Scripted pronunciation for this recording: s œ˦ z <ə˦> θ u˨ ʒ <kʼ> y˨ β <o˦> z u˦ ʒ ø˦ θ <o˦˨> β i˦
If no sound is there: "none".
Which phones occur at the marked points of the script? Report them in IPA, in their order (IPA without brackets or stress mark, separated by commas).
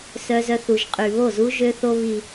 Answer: œ˦, qʼ, o˦˨, o˦